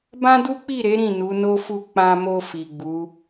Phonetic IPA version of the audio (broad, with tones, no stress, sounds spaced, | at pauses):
b ã˦ d u˦ k͡p i˦˨ ɾ e˨˦ ɾ ĩ˦˨ n u˨˦ n o˦ f u˦˨ k͡p ã˧ m o˧ f i˨ ɡ͡b u˨˦